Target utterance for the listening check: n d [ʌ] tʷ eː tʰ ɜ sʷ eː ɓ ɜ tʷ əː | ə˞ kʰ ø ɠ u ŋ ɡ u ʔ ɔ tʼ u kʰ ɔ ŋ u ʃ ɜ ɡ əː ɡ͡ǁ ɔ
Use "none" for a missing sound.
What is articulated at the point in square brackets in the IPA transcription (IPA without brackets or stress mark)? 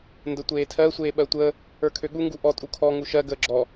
ə